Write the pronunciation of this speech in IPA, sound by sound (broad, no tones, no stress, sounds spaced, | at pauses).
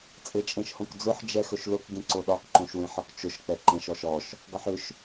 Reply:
t͡sʼ e t͡ʃʼ ẽ ʃ h õ k d͡z ʊ ħ d͡ʒ ɛ x ɵ ʃ l ʊ k ɡ ẽ ǀ o ɗ ɒ k ǃ õ ʃ w ẽ ħ ɒ k t͡ʃ ʊ ʃ k͡p ɛ ǃ ẽ ʃ ɔ ʃ ɔ ʃ | ɡ ɒ ħ ʏ ʃ